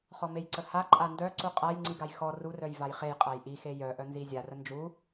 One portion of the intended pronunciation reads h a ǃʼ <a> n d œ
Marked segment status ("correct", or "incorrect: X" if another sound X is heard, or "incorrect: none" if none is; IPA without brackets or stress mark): correct